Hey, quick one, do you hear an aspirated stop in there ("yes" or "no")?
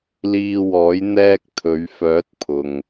yes